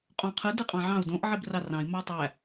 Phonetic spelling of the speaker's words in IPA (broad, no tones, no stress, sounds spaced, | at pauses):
qʼ õ qʰ ɯ d ɯ qʼ ɑ̃ ʕ ɑ̃ u̯ d õ ʔ ʕ i b r ɑ r ɑ̃ i̯ m ɑ tˤ æ